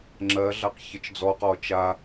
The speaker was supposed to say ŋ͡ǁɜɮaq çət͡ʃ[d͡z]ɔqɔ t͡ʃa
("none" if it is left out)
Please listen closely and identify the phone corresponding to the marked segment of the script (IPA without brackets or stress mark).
d͡z